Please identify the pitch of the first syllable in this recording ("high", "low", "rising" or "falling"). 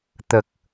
low